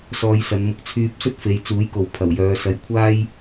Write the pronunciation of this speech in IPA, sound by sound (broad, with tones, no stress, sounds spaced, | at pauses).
s ɔː˧ j s ɐ˨˧ n m ʊ˧ k̚ t͡sʰ yː˧ p̚ s ɵ˥ t̚ f e˨˧ j t͡s uː˨˥ j k o˨ w pʰ ɐ˨˩ w j œː˨˧ s ɐ˨˥ j kʷʰ aː˥ j